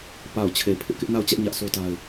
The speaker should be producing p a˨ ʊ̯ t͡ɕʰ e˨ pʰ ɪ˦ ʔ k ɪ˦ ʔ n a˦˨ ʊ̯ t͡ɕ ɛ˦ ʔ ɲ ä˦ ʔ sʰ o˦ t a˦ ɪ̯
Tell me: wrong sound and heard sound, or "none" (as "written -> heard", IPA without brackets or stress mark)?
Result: none